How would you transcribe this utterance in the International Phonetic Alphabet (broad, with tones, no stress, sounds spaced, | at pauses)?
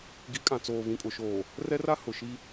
ɡ i˨˦ kʼ ã˨ t͡s oː˨ β ĩ˨ kʼ ʊ˨ ʃ oː˨ | r ɛ˦ r a˦ h ʊ˨ ʃ i˦